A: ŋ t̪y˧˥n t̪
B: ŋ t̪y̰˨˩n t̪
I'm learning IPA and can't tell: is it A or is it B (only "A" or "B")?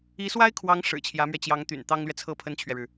B